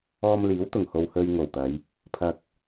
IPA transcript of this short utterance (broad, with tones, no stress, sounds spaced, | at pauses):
ɔː˧ m l iː˨˥ w t̪ ʊ˨˩ ŋ h o˨ w h ɵ˧ ɥ ŋ o˨˩ w t̪ ɐ˨˧ j | pʰ ɐ˨ k̚